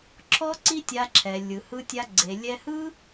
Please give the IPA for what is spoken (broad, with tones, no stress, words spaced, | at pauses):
ǁʰɔ˦ǀi˦tʲa˧ ǁʰɛ˨lʲɯ˨hɯ˧tʲa˧ ɡ͡ǀe˨lʲɛ˧ hɯ˦